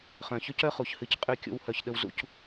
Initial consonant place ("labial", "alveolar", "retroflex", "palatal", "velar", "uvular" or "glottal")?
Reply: uvular